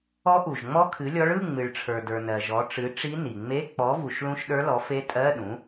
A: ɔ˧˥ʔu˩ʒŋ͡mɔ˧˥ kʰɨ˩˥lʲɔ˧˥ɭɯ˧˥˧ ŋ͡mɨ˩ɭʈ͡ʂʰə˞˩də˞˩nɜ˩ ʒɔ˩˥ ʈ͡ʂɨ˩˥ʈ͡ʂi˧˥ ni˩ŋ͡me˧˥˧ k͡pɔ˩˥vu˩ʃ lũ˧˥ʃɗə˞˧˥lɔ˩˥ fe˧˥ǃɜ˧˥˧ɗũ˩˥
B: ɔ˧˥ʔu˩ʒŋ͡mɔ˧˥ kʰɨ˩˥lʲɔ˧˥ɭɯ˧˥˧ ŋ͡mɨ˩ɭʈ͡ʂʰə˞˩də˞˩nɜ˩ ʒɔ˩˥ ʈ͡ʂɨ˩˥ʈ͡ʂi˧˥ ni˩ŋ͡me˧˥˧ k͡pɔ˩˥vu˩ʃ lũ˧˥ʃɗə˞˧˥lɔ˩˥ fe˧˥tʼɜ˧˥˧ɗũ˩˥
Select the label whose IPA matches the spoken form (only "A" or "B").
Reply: B